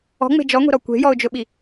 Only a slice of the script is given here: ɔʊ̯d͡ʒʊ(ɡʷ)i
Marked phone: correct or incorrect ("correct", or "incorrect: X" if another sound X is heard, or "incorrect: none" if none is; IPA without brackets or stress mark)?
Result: incorrect: ɓ